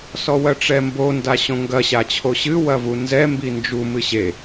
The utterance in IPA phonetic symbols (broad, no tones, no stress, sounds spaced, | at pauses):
s ɔ w ɐ ʈ͡ʂ ɛ m b o n d a ɕ õ ŋ ɡ ɐ ɕ a t͡ɕʰ o ɕ ɨ w ɐ v u n z ɛ m b i n d͡ʒ u m ɨ ɕ e